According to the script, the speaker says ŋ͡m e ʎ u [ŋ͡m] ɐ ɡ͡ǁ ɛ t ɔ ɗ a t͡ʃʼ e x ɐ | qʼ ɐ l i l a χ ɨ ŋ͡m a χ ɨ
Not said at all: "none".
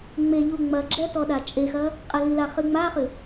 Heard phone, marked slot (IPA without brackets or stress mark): ŋ͡m